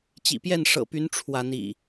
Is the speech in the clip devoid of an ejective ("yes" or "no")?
yes